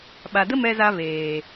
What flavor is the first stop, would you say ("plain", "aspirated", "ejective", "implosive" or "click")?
implosive